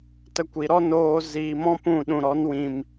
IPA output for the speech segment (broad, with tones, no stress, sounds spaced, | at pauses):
t ə˧ kʷ i˨ ɾ ɔ˦ n oː˧ z iː˨ m ɔ̃˦ p ũ˦˨ ɗ ũ˨ ɾ ɔ˨˦ n w ĩ˨ m